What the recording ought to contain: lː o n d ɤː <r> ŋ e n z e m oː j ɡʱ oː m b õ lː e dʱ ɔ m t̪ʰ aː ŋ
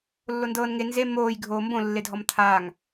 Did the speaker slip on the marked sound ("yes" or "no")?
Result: yes